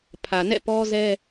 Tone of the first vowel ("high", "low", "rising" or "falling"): low